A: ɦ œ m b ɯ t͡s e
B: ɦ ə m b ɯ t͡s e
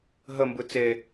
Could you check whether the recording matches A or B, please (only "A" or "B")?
B